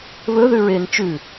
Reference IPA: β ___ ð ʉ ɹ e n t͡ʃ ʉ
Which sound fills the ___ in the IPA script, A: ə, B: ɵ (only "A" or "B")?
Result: B